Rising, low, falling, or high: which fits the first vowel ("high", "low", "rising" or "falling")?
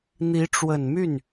rising